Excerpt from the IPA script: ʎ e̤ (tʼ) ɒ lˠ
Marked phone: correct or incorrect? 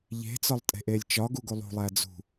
incorrect: t͡s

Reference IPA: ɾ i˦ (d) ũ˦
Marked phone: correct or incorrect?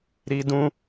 correct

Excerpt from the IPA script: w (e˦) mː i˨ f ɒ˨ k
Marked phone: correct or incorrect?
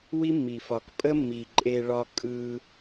incorrect: i˦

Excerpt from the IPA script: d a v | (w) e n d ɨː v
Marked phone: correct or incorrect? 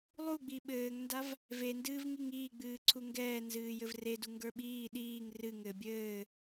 incorrect: v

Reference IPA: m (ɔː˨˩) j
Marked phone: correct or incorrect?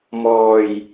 correct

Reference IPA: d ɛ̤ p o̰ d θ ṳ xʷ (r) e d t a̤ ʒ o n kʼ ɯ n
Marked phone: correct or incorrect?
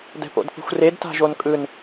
correct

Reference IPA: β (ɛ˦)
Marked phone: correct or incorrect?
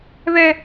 correct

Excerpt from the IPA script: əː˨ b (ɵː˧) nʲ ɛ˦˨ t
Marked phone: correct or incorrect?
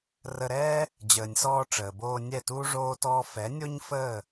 incorrect: oː˧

